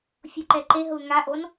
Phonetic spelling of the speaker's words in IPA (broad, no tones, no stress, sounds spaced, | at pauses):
fʲ u ǃ ɛ ǃ e ɦ ʊː ŋ a ʔ o n